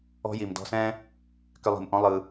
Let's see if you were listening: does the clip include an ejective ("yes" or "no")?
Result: no